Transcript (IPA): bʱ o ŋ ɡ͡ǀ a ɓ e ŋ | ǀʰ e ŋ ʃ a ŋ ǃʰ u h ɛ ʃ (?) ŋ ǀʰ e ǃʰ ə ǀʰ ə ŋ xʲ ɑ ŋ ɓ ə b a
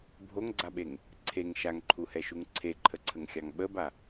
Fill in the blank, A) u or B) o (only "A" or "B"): A